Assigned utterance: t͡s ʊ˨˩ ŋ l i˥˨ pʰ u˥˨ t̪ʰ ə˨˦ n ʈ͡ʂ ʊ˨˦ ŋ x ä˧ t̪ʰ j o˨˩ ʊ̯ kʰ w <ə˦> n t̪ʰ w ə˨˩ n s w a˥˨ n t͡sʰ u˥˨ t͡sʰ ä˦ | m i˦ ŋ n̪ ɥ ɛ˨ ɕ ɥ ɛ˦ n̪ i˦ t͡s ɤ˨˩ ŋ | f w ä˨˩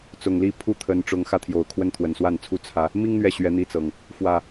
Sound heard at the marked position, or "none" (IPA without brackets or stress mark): ə˦